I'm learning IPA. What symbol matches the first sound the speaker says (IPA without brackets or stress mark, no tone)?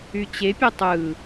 y